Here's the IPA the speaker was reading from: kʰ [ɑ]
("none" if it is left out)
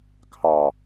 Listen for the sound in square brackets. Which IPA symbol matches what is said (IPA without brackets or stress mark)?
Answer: ɑ